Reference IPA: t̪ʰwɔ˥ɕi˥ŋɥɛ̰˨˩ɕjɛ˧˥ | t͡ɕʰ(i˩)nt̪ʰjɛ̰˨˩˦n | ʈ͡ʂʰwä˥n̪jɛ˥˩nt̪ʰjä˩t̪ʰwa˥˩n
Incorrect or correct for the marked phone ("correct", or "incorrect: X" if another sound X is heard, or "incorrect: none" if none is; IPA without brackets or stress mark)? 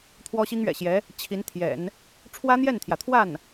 incorrect: i˧˥